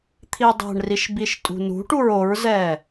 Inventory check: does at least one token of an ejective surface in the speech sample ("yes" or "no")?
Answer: yes